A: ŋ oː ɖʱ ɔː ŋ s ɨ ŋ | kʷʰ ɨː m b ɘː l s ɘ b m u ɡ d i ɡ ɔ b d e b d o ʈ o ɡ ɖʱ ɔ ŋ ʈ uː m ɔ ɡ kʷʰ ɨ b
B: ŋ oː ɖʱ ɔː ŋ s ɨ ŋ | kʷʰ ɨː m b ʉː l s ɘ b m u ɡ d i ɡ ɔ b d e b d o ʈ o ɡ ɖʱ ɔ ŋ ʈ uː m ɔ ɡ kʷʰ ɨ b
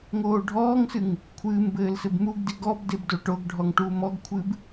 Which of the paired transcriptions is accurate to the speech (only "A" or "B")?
A